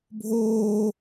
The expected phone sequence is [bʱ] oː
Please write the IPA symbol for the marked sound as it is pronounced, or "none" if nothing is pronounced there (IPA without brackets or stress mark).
bʱ